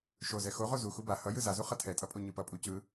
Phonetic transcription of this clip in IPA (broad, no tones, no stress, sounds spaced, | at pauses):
ʃ o z ɛ x o ʁ o z u x u b a h ʌ j ɯ z a z u χ ʌ tʰ ɛ tʼ ʌ pʼ o ɲ ɯ p ʌ pʼ u c ɯ